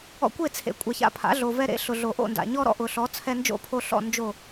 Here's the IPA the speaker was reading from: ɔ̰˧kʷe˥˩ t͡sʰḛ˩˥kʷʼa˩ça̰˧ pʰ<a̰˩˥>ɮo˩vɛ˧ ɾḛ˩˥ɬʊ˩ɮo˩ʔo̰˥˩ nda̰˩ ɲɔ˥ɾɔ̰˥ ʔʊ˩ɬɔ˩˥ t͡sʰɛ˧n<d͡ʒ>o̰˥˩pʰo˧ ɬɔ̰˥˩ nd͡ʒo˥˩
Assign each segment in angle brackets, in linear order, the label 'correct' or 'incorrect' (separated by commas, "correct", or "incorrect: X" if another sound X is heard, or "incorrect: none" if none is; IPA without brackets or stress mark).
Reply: correct, correct